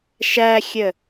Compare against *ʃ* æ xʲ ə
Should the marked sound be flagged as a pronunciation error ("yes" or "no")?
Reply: no